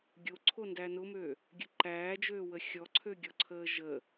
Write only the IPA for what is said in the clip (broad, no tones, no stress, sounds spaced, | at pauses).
ɡʲ o ǀʰ o n d æ n ʊ m ø | ɡʲ ə ǃ æː d͡ʒ øː w ə xʲ ɔ ǀʰ ø ɡʲ ɔ ǀʰ əː ʒ ə